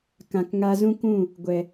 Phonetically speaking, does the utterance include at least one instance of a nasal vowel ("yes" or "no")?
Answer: yes